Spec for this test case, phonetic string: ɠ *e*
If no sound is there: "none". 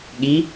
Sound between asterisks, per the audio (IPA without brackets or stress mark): i